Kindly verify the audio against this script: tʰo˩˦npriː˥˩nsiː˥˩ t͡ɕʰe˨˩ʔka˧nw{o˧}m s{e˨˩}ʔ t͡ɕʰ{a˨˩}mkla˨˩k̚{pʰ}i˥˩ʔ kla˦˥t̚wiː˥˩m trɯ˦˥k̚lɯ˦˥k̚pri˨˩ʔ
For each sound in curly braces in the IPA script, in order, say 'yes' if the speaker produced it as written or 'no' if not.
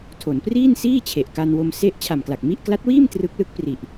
yes, no, yes, no

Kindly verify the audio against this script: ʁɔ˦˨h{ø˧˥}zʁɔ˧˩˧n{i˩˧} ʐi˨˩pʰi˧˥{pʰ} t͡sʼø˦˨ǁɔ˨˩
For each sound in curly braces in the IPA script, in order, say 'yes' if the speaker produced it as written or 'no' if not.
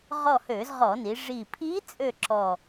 no, yes, no

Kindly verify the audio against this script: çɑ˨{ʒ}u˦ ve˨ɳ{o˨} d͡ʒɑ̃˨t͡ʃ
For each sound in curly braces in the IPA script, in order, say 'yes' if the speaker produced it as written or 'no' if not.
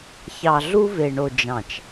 no, yes

